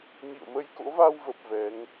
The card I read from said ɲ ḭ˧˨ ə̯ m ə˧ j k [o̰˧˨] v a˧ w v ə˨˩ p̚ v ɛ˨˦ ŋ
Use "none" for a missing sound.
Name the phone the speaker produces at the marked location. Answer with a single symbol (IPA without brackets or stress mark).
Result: o̰˧˥